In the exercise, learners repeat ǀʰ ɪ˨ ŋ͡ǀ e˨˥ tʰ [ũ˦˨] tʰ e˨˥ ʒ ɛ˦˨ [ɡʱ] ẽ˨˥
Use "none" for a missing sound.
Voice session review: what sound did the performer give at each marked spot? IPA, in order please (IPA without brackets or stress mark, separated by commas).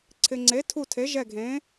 u˦˨, ɡʱ